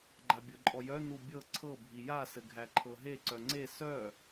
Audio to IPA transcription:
ɡ͡ǃ a bʲ ɤ ǃʼ ɔ j œ n u bʲ ɤ ǀʰ ɤ bʱ i j a s ɘ ɡʱ æ ǃʰ ɤ ɦ e ǀ œ ŋ͡ǀ e s œ

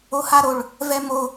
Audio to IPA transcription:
o h a ɾ o ɭ | v ɛ m o

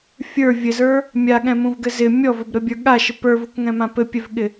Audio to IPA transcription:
fʲ ə˞ vʲ ɘ z ə˞ | mʲ a ɠ ɛ̃ m ũ v ɡ ɘ z ɪ mʲ ɔ v ɘ b ɾ ɘ bʲ ə˞ ɠ a ʃ ɪ p ə˞ v u k ŋ ɛ̃ m ã p ɘ pʲ ɛ v ɠ ɪ

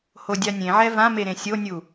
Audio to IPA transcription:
h o dʲ a nʲ ẽ ʕ ɛ v ã m e ɾ ẽ sʲ o nʲ u

